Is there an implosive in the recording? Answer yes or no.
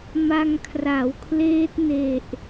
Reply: no